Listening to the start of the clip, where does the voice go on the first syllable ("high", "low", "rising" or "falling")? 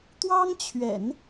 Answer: high